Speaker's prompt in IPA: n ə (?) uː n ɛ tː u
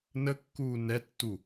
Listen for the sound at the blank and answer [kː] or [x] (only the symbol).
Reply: kː